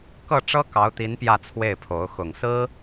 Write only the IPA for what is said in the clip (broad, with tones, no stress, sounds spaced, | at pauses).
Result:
k ɤ˥˩ ʈ͡ʂ ɤ˥ k ɑ˧˥ ʊ̯ t̪ i˧˥ n p j ä˥˧ t͡sʰ w e˥˩ ɪ̯ pʰ o˧˥ ʊ̯ x ʊ˨˩ ŋ s ɹ̩˥